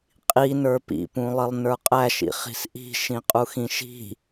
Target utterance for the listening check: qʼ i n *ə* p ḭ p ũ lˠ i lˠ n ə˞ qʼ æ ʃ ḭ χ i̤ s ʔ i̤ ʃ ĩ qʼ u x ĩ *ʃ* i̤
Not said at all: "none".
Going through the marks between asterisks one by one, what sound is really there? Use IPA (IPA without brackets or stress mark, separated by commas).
ə˞, ʃ